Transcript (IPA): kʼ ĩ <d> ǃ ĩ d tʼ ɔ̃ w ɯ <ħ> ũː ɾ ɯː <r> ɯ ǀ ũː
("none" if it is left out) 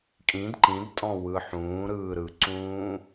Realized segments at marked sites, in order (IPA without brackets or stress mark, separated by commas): d, ħ, ɾ